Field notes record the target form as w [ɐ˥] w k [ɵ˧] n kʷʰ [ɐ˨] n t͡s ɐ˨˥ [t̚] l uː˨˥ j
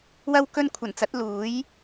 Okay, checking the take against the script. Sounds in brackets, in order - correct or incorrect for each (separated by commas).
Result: incorrect, correct, incorrect, correct